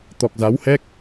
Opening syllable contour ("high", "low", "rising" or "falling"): low